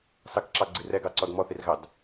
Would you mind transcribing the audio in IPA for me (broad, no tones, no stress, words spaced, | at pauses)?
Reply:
sɑkǁɑɡ͡ǀir ɛɡɑǀɔd mɔθirɣɑd